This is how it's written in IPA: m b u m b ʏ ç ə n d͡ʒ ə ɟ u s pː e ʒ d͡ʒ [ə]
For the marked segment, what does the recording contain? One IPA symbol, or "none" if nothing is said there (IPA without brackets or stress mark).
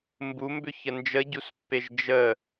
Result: ə